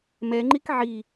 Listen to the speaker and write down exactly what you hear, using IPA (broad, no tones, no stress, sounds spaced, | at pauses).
m ɛ ŋ͡ǃ i k ʕ i